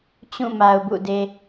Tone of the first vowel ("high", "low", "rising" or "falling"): falling